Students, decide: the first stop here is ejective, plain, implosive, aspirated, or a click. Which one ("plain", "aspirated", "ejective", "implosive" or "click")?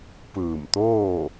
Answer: plain